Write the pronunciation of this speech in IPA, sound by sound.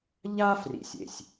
ʎ a˥ f r ḭ˨ sʲ ḛ˩ sʲ

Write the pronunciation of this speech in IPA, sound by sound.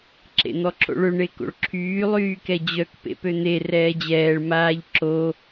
ǁ ḛ n̪ ɔ ǁ o̰ ɭ ø ɳ e k o̰ ɭ ǁʰ yː lˠ yː k ɛ d͡ʑ œ k p ḛ p ø n̪ e r ɛː d͡ʑ ɛː ɭ m aː ʎ ǁ o

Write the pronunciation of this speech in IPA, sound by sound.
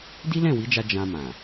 d i˦ l ɛ̃˦˨ w i˨˦ d͡ʒ a˧ d͡ʒ ã˧ m ã˨

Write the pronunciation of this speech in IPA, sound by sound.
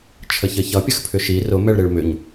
t͡ʃʰ ə ç ə ç ʌ pʲ ə x pʰ ʏ ʃ i r ʊ m ɛ ɭ ɾ e ɭ m ʏ ɲ

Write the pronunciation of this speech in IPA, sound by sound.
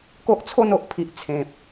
k o˦ ʔ t͡sʰ o˥˧ n o˨ ʔ pʰ i˨ ʔ t͡sʰ ẽ˨ p̚

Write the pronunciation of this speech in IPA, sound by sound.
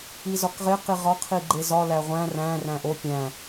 i z ɒ k ʁ e q i ʁ ɒ qʰ i ɡ͡ǃ e z ɒ l æ ʁʷ æ̃ r æ̃ r æ̃ ʔ o pʲ æ̃

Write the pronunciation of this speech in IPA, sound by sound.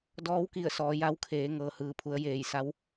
d ɔː˧˥ w k i˧˩ ə̯ s ɔː˩˧ j a˧˥ w kʰ eː˩˧ ŋ ɤː˩ h ɯː˩ pʰ u˩˧ ə̯ j eː˧˩ j s a˧˥ w

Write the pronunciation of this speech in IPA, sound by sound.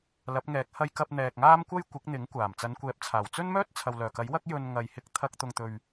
l ɐ˨˥ p̚ ŋ ɛː˨˥ k̚ h ɐ˧ j k ɐ˧ p̚ n̪ ɛː˨ k̚ ŋ aː˥ m kʷ ɐ˥ j kʷ ɪ˨˥ k̚ n̪ ɪ˨˥ ŋ kʷ aː˨˩ m t͡s ɐ˨˧ n kʷ ɛː˨˥ p̚ t͡sʰ aː˨˩ w t͡s ɵ˥ n m œː˥ t̚ t͡sʰ ɐ˨ w l œː˨˩ k ɐ˨˥ j w ɐ˥ k̚ j ɵ˧ n ŋ ɐ˨ j h ɪ˧ k̚ t̪ʰ ɐ˧ k̚ t̪ ʊ˧ ŋ t̪ ɵ˧ ɥ

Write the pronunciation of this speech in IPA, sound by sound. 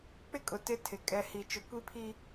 k͡p ɪ˦ kʼ ʊ˨ t ɪ˦ tʰ ɪ˨ kʼ ɛ˨ h i˨ t͡ʃ ʊ˨ kʷ i˦ pʰ i˦

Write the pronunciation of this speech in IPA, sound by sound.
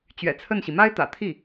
t͡ɕ ɥ ɛ̰˨˩ t͡sʰ ə˥˩ n ɕ i˩ m a˥ ɪ̯ t̪ ä̰˨˩ t̪ʰ i˥˩

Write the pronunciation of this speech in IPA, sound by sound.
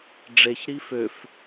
ɖ͡ʐ e ç ɾ i f ø f

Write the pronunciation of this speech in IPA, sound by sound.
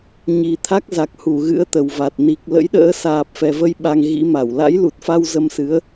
ɲ i˨˩ t̪ʰ a˦˥ k̚ z a˨˩ k̚ h u˧˩ ɣ ɨ̰˧˥ ə̯ t̪ ə˨˩ w v a˨˩ t̚ n i˨˩ k̚ l ə̰˧˥ j ɗ ə̰ː˧˥ s aː˨˩ p̚ f ɛ˨˩ v ə˧ j ɓ a˧ ŋ ɣ ḭ˧˥ m a˧˩ w l a̰˧˥ j l u˨˩ t̚ f a˧ w z ə˧ m s ɨ˨˦ ə̯

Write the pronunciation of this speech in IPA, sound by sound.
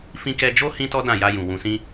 f ĩ˦ k ɛ˧ d͡ʒ o˦ h ĩ˦ t ɔ˦ d ã˦˨ j a˧ j ũ˨ w ũ˨ s ĩ˧

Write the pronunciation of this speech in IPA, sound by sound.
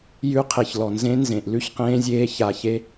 j ʉ˧ qʰ e˨ ç l ɔ˨ n z ẽ˧ n z ẽ˨ ʔ l ʉ˦ ç q ẽː˧ zʲ eː˧ ç a˨ ç e˧

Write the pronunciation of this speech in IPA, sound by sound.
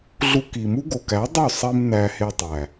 ɮ u˧ k i˨ m u˦ ɡ o˨ k æ˨˦ dˤ o˦˨ sˤ i˧ m n æ˧ h e˧ tˤ æ˨

